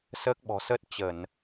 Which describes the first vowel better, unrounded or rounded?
unrounded